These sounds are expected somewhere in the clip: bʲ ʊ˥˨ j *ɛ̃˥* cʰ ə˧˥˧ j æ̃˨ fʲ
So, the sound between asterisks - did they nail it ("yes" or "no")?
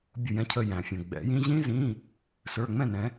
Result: yes